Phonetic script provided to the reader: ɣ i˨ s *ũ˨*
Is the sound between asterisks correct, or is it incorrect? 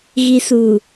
incorrect